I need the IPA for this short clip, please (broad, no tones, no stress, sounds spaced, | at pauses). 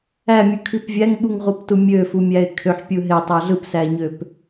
æ mʲ u kʰ i p vʲ æ ŋ ɓ u ŋ ʁ u p t u mʲ ø f u mʲ æ ɪ̯ kʰ ø ħ pʲ ɯ ɦ e tˤ ɑ ɮ ɯ p s æ ɲ ø p